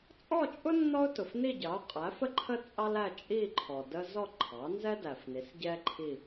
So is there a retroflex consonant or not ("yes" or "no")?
no